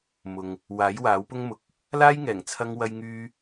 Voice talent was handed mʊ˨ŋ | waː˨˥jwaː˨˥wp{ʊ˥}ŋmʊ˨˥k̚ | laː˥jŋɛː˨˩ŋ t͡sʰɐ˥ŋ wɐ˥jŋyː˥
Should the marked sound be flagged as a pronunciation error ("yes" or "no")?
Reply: no